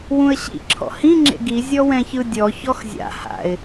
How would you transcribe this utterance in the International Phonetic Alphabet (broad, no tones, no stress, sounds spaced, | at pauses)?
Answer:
w ũ ə̯ ɕ ḭ ǁʰ ɔ̰ h ĩ ŋ͡ǁ ḛ ɡ i zʲ ɔ w ɛ̃ ç ɯ dʲ ɔ ç ɔ x zʲ a̰ h a̰ ɪ̯